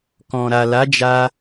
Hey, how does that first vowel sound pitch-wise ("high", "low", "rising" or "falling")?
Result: low